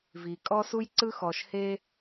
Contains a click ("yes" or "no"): yes